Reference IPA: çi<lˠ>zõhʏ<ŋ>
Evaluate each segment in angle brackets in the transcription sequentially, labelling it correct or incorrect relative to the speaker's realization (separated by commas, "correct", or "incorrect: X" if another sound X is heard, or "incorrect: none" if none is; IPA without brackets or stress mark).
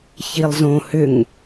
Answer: correct, correct